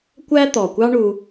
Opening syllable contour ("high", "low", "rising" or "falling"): high